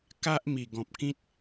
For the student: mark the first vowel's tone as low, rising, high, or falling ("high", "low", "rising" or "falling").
high